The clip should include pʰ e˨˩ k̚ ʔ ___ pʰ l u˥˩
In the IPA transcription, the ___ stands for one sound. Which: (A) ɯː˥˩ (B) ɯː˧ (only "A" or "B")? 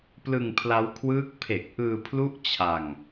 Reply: B